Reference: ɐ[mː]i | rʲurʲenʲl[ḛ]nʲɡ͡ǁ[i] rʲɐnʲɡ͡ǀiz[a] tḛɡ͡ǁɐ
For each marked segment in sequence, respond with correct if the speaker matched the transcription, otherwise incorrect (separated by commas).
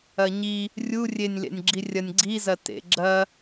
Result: incorrect, correct, correct, incorrect